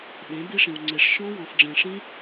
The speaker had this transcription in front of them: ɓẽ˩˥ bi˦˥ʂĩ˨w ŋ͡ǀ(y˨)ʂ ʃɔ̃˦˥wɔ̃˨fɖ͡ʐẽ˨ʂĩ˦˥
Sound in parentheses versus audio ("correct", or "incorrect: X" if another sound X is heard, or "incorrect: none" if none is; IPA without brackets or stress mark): incorrect: e˨